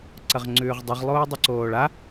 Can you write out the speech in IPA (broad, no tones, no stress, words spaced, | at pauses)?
ǀɐʁŋ͡ǀʉːʁdˤɨʁ lˠoːdˤʉǀoːɭa